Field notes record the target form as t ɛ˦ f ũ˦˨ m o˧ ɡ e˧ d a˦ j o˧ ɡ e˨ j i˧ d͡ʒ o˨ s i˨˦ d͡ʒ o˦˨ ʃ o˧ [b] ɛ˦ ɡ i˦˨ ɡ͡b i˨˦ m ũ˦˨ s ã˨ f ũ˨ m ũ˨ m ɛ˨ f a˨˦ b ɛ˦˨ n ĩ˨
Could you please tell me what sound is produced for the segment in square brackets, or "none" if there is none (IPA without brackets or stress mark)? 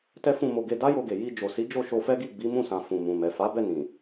f